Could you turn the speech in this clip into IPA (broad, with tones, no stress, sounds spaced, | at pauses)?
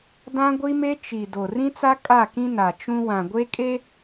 d ã˦ ɡʷ i˦ m e˦ t͡ʃ i˨ d o˨ r ĩ˦ t͡s a˦ kʼ a˦˨ k ĩ˦ n a˨ t͡ʃ ũ˦ w ã˨ ɡʷ e˦ kʼ e˦